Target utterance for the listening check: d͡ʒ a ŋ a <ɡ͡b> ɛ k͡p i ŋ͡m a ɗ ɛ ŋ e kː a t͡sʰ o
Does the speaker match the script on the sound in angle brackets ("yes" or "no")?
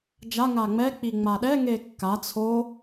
no